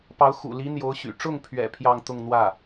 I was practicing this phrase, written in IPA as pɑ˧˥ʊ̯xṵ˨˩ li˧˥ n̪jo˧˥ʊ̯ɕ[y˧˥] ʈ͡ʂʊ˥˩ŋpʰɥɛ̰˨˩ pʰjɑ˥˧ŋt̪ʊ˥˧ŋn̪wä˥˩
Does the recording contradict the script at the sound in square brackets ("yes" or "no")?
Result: yes